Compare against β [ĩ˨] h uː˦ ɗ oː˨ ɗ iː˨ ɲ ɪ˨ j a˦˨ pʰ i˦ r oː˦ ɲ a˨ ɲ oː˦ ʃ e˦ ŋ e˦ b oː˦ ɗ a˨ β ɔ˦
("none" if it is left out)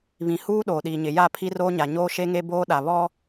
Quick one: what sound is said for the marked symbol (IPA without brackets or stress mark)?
ĩ˨